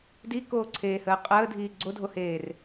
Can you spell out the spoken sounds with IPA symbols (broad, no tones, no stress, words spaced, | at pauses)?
dikoːǀʰeːhəː qʼəːdʱiː ɡ͡ǀodʱoheːr